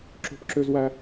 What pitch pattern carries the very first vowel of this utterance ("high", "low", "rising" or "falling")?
high